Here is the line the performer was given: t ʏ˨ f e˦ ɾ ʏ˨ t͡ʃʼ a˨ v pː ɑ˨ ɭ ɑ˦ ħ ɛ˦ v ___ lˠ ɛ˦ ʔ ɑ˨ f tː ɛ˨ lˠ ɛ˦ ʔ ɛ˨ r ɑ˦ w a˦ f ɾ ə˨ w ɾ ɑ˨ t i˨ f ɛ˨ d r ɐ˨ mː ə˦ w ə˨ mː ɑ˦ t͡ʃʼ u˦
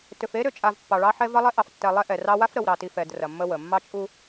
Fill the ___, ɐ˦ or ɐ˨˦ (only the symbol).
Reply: ɐ˦